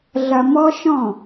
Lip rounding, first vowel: unrounded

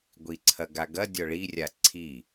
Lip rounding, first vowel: unrounded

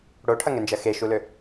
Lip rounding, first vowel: rounded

